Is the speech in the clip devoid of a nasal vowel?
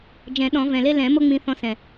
no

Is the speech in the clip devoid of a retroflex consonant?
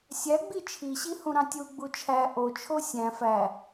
yes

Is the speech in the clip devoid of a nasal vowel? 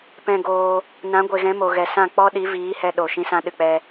no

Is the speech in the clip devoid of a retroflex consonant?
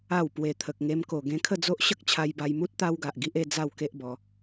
yes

